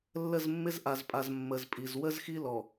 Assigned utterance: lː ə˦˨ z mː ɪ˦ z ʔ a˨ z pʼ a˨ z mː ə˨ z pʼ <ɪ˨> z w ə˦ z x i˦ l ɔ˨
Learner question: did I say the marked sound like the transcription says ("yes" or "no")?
no